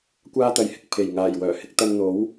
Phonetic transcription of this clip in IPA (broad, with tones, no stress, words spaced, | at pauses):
kʷaː˥t̪ɐ˨˧jhɪ˧k̚ pʰe˨˩jŋaː˨˩j wœː˨˩hɪ˧k̚ t̪ɐ˧nn̪o˨˥w